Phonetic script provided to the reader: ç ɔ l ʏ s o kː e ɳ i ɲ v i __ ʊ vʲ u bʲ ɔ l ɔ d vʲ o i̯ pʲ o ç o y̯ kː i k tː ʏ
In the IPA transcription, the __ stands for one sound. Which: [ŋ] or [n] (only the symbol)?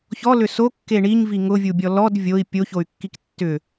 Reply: ŋ